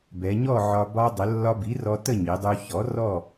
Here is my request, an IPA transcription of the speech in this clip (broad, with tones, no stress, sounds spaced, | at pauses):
b ɛ˩˧ ɲ ɔ˥˨ ʕ ɒ˧ b ɒ˧ dˤ ə˩˧ lː ɒ˧ b i˩˥ r ɔ˧ t ə˥˨ ɲ i˩˧ dˤ u˧ ç ɔ˩˥ r ɔ˥˨